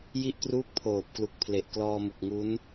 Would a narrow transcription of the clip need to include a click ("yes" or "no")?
no